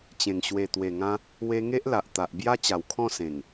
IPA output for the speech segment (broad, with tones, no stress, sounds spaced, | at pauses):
t͡ɕ ẽ˨˩ ŋ ɕ w e˨˩ t̪ w e˨˩ ŋ ã˧ | w e˧ ŋ e˦ ʔ l a˨ ʔ t̪ a˨ ʔ b j a˦ t͡ɕ a˨˩ w kʰ ɔ̃˥˧ s ẽ˨˩ ŋ